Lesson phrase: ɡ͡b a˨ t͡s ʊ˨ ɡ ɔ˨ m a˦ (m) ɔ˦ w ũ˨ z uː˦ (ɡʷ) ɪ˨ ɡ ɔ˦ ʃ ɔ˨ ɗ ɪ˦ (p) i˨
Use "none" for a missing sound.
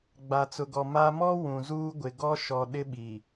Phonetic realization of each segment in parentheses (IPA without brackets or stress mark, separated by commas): m, ɡʷ, ɓ